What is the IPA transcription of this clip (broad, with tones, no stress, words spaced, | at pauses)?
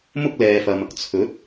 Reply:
mʊ˥k̚ lɛː˨fɐ˨m | t͡sʰɵ˨˥t̚